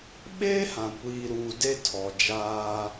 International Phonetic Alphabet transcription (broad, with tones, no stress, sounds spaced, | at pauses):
ɓ eː˦ h ã˨ kʷ iː˨ ɾ uː˨ d e˦ tʰ ɔ˨ d͡ʒ aː˦